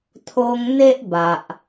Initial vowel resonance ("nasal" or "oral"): oral